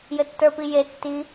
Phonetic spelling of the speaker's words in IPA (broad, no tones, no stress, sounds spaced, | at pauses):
j ɘ tː ə˞ p i j e tː i